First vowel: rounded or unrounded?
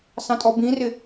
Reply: unrounded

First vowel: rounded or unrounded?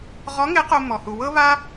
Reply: rounded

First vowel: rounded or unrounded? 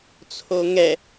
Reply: rounded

